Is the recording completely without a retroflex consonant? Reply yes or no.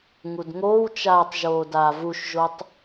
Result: yes